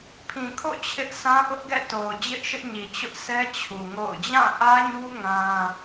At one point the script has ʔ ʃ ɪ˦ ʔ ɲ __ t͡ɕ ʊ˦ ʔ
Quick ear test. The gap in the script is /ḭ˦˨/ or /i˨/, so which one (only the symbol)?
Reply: i˨